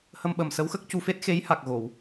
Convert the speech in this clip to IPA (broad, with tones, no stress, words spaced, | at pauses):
hə˧mɓə˨˩msə˧˥wxə˦˥k̚ cu˧fe˦˥t̚xe˧˥jha˨˩k̚ ɣo˨˩˨w